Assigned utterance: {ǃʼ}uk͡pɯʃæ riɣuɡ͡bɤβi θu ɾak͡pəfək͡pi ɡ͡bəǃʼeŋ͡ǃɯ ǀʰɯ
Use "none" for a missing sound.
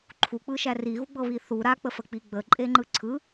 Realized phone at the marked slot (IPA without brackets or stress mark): ǃʰ